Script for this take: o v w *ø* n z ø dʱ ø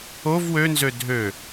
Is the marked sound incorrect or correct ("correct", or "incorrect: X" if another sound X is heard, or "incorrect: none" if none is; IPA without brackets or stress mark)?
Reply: correct